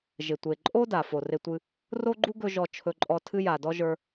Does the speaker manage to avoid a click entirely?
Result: no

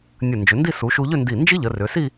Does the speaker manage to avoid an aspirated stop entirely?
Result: yes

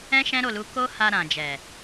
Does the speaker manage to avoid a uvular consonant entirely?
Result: yes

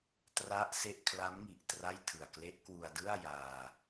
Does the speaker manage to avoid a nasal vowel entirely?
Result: yes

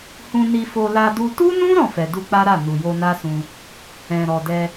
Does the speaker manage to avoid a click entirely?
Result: yes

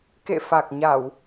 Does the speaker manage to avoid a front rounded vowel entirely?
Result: yes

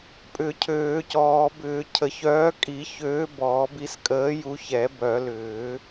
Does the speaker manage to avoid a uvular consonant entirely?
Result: yes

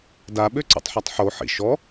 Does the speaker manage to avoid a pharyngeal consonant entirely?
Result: no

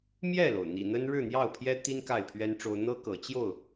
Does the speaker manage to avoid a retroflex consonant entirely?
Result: no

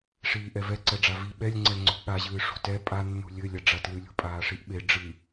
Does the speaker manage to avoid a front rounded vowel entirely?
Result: yes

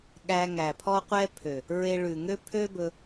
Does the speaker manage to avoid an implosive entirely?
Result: no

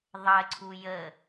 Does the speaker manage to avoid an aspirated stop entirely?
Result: no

